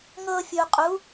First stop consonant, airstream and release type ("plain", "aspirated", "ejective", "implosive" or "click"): ejective